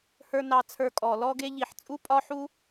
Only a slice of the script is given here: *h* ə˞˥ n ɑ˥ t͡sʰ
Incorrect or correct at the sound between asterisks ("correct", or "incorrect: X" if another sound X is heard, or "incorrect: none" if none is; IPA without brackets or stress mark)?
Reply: correct